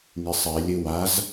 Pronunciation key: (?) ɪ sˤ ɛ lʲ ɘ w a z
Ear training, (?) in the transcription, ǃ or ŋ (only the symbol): ŋ